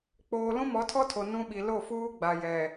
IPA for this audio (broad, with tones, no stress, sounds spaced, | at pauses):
k͡p oː˨ l ũ˦ m ɔ˨˦ tʰ ɔ˦ tʰ o˨ n ũ˦ ɓ i˨ l o˦˨ f uː˦ ɡ͡b a˨ j ɛ˨